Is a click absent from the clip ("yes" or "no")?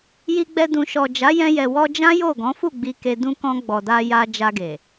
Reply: yes